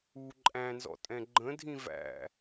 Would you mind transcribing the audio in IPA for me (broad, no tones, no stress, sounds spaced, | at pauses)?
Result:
u ǃʼ æ̃ n z ɔ̰ tʼ ɛ̃ ɡ͡ǃ ə̃ dʱ ĩ v æ̰